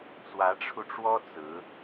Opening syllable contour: rising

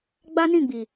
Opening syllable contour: high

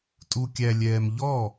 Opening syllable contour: high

